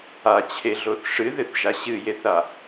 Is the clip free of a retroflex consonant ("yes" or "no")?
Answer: no